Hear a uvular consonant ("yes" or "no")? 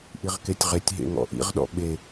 yes